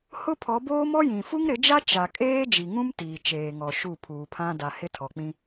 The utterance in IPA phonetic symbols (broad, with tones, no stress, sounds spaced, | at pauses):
h ʊ˦ pʰ ɔ˨˦ b oː˦ m ɔ˦ j ĩ˨ f u˦ ŋ ɾ ɪ˨˦ d͡ʒ a˦ t͡ʃ a˨ kʼ eː˦ d͡ʒ i˨ ŋ ũ˦ m t iː˨ t͡ʃ eː˨ ŋ ɔ˨ ʃ u˦˨ pʰ uː˨ pʰ ã˦ d a˨ h ɪ˦ tʰ ɔ˨ k͡p ĩ˦